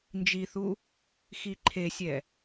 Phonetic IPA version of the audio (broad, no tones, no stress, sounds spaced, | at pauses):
n d͡ʒ i θ u | x i ǃʰ e sʲ ɛ